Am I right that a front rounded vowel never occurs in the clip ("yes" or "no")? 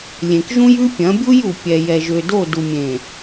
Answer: no